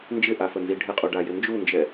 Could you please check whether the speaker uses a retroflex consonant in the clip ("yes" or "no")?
yes